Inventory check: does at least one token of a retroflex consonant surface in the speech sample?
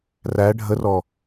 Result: yes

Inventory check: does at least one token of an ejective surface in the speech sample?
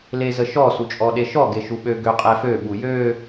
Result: yes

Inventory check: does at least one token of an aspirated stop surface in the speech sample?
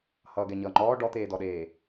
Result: no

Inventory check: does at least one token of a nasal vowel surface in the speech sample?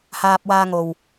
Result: no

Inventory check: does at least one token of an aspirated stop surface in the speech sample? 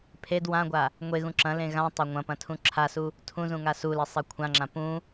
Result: yes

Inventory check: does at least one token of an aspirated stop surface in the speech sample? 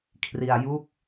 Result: yes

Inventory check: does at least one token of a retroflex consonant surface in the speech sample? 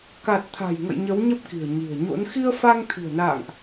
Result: no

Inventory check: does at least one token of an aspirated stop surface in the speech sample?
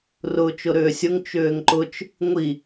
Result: no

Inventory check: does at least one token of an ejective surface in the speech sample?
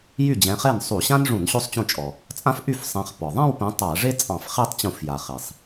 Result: yes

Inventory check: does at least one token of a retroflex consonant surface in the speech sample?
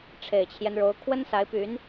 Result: yes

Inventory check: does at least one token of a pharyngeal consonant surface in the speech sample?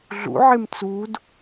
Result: yes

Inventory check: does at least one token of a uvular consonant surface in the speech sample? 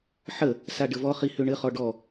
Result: yes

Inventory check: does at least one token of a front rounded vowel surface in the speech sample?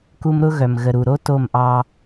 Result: yes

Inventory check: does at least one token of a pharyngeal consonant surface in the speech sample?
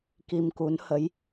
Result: no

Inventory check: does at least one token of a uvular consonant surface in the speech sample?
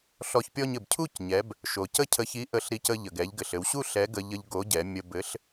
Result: no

